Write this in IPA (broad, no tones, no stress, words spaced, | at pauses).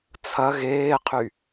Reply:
t͡sʰɐ ɣeːqʰy